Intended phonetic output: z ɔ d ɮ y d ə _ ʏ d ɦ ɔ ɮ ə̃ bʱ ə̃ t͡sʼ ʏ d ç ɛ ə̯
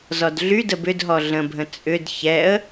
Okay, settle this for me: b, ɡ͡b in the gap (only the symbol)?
b